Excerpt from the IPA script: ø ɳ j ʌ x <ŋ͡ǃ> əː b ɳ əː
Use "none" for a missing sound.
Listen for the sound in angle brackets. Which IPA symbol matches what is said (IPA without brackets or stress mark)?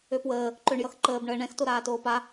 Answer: ǃ